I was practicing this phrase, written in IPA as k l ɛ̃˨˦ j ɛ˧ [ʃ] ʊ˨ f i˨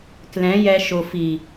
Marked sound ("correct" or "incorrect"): correct